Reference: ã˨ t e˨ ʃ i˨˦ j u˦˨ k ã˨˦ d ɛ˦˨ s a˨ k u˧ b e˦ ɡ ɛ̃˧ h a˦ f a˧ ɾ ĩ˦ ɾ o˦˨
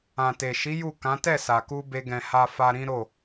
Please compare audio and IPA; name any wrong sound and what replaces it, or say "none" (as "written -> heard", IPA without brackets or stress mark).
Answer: d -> t